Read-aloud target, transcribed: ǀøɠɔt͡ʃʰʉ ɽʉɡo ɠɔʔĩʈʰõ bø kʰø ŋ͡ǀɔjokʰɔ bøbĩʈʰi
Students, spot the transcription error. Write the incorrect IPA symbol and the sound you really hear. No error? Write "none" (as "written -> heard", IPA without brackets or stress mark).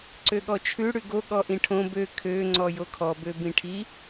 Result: none